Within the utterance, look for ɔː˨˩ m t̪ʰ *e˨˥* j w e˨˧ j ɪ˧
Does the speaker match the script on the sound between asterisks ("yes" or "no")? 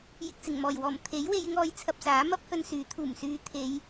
yes